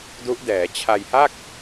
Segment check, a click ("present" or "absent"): absent